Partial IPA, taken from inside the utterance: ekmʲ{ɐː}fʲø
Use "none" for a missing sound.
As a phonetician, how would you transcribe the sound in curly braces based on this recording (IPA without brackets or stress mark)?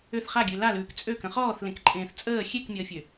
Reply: əː